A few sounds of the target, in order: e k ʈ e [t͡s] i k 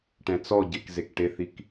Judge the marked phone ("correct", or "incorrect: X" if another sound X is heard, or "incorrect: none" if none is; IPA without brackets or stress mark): incorrect: θ